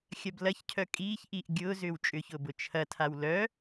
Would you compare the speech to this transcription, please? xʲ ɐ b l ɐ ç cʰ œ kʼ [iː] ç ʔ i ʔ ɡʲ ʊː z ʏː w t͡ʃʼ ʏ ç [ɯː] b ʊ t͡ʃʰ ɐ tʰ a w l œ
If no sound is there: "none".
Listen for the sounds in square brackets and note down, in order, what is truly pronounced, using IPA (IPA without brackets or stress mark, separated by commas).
iː, ʊː